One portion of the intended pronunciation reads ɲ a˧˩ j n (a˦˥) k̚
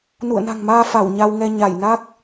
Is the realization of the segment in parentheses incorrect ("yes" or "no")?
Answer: no